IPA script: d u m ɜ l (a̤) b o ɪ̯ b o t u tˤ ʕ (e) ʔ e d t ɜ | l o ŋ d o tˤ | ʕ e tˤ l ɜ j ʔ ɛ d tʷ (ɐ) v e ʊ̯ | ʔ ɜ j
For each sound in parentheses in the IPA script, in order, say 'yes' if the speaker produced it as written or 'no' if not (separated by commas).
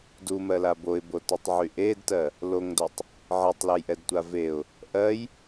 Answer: no, no, no